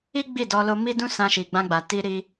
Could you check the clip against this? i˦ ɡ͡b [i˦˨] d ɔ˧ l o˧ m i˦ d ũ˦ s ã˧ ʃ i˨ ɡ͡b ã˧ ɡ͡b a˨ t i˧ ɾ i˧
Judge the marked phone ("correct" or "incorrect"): correct